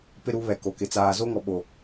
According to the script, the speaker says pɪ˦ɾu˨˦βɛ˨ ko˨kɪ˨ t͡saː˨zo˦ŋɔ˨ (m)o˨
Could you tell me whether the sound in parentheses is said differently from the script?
yes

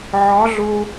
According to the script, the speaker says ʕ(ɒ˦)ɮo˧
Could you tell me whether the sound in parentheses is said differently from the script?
yes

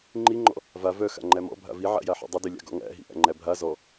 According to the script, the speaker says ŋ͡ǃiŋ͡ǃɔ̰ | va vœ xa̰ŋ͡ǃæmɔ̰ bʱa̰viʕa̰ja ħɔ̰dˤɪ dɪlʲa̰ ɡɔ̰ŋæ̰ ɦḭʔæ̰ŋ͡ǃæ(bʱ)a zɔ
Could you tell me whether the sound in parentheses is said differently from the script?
no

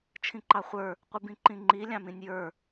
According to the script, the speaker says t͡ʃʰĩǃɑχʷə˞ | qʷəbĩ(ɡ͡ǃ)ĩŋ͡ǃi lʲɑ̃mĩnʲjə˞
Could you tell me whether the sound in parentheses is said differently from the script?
yes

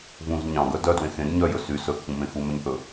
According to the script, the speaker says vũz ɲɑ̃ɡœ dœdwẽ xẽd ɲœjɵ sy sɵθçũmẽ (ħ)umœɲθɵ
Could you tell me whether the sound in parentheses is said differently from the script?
yes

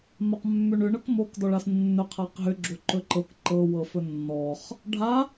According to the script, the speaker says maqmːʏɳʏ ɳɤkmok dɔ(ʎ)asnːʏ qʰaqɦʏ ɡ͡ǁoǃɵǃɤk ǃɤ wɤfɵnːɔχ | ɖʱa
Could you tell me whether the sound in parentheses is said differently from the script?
yes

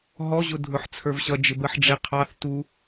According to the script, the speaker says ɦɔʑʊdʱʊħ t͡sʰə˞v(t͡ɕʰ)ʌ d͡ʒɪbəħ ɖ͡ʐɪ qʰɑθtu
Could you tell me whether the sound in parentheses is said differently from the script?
yes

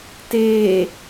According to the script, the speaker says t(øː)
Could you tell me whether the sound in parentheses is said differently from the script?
yes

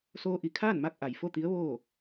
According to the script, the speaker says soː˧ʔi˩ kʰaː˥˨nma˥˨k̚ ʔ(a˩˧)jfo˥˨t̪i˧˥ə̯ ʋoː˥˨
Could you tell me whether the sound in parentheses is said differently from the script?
yes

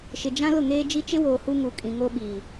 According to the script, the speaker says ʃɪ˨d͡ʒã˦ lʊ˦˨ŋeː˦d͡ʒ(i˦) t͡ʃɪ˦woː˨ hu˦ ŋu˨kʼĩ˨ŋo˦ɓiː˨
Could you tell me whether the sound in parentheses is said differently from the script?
no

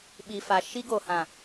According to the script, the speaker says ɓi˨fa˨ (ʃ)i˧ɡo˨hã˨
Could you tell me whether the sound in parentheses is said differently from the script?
no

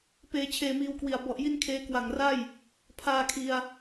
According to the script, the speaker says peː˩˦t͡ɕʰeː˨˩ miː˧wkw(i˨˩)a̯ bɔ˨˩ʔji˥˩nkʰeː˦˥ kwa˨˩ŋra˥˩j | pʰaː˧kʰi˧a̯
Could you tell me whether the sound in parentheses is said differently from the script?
no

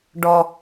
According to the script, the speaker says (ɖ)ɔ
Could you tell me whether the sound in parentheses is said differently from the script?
no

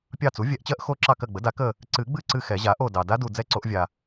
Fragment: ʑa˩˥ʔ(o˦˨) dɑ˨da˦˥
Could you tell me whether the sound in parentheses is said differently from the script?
no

